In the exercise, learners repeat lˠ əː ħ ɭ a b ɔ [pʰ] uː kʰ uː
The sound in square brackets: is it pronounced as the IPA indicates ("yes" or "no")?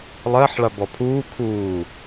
yes